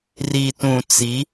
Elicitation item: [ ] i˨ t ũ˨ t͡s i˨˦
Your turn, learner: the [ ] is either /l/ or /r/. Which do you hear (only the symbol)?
r